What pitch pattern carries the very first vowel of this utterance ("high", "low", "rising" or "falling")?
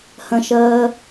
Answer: high